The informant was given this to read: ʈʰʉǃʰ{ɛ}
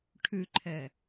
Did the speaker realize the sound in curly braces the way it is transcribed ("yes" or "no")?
yes